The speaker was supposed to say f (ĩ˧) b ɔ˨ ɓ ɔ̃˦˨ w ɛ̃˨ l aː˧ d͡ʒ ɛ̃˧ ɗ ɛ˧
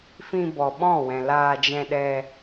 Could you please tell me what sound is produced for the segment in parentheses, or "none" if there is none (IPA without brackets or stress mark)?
ĩ˧